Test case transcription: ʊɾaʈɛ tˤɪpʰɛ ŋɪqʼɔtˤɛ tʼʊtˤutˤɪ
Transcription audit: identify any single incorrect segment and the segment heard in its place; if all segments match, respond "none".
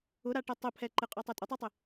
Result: ŋ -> ǃ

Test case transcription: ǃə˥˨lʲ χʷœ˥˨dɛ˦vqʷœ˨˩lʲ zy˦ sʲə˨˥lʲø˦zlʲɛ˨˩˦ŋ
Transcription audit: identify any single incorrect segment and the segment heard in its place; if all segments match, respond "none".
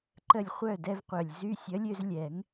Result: none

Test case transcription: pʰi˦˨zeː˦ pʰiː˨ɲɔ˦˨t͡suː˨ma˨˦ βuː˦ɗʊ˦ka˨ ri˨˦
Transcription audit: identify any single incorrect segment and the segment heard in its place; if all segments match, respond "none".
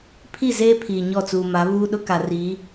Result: none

